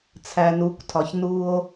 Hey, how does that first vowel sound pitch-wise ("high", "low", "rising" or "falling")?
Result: low